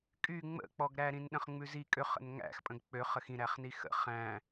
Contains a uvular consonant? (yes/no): yes